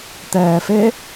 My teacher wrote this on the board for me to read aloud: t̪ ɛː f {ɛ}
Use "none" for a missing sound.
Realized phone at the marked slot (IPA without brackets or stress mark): e